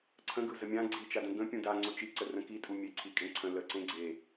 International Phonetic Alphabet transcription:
ǀʰ ə̃ ɡ ɯ z ə mʲ ã ɡ͡ǀ i t͡ʃ a d ə̃ ɡ ə̃ pʲ ũ d a ŋ͡ǀ o t͡ʃ i ǀ ə r ə̃ k i tʼ u mʲ e ǀʰ i kʼ ẽ ǀʰ ə̃ l ə ǀ ẽ ɡ͡ǀ e

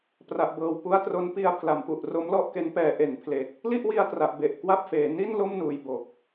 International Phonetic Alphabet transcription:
p r a˨˩ ʔ b ɤː˨˩ w p u˦˥ a̯ t r o˦˥ n p i˧ a̯ pʰ l a˨˩ m p u˨˩ ʔ r o˦˥ m l ɔ˥˩ ʔ k e˦˥ n p ɛː˧ ʔ e˩˦ n pʰ l e˨˩ k̚ | l i˥˩ ʔ w i˧ a̯ t r a˨˩ ʔ b e˨˩ ʔ k w a˥˩ p̚ f eː˩˦ n i˥˩ n l o˥˩ m n uː˨˩ j b o˨˩ k̚

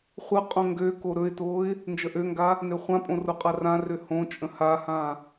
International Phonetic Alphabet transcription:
χʷ ə qʼ õ ŋ ɡ ø k o ɾ ɵ ɪ̯ t o ɪ̯ | n d͡ʒ ə ʔ ø ŋ ɡ a | n ø χʷ ã pʼ õ r o qʼ a r ã r ø h õ t͡ʃʼ ə̃ h a h ã

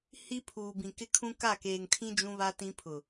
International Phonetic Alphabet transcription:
h i˦ pʰ uː˨ b ĩ˨ k ɪ˦ kʰ ũ˦ k a˦˨ k eː˨ ŋ tʰ ĩ˦ d͡ʒ ũ˦ β a˦ t ĩ˦ pʰ ʊ˨

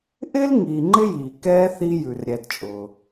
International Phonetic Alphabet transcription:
ʔ ɪ˦ l ŋ iː˨ ŋ͡ǃ ɪ˥ j iː˩ k ɛː˥ θ i˦ j ʉ˩ r ɾʲ ɛ˨ d t͡ʃʼ ʊː˩

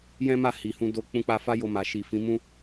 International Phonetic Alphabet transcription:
j ɛ̃˦ m a˦˨ h i˨ h ũ˧ d o˧ k͡p ũ˧ k͡p a˧ f a˦ j o˧ m a˨ ʃ i˨ f ĩ˨˦ m ũ˦

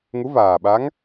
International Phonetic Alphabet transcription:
ŋ u˧˥ v aː˨˩ ɓ a˧˥ ŋ

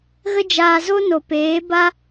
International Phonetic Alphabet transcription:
ɣ ə˦ d͡ʒ aː˧ z o˦ n o˨ p eː˨˦ b a˦

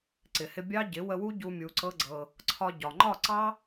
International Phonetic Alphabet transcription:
ǀ ɪ˨ h ɪ˧ bʲ ɑ˦ ɟ ɪ˨˦ w ə˧ w u˦ ɟ u˧ mʲ u˧ ǀ ɤ˦ ɡ͡ǀ ɤ˧ | ǀʰ ɒ˧ ɟ ɒ˨ ŋ͡ǃ ɒ˦˨ ǀ ɑ˦

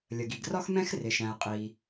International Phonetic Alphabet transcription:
lʲ ə˩ ɡ i˩ ɡ r ɒ˥ x m ɛ̃˥ x r ɪ˩ ʃ æ̃˩ ə̯ qʼ iː˩

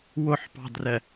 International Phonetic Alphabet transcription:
w ʊ ħ p ɑ̤ d r ɛ

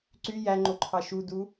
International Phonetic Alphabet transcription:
ǀ y j æ ŋ͡ǃ o ǃʰ ɑ ʃ u d u

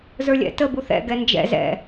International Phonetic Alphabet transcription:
z ə˞ lʲ ɛ̰ t ə b u θ ɛ̰ ɡ ɛ n d͡ʒ ɛ̰ z ɛ̰

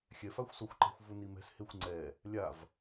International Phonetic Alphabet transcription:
xʲ ɛ f a xʷ s o xʷ ǃ ɛ̤ xʷ v u n i m ɛ̤ s h e xʷ ŋ͡ǀ ɛ | lʲ a v

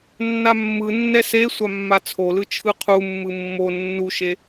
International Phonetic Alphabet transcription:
nː a mː ɯ nː ɛ s e sʷ a mː a t͡sʰ o l ɯ t͡ʃʰ ɯ qʰ u mː ɯ mː o nː u ʃ e

